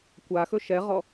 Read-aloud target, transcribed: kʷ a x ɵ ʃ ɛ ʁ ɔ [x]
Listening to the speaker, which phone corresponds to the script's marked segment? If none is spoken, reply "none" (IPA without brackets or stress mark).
none